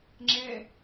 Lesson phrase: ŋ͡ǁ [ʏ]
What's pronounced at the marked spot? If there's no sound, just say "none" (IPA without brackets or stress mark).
ɛ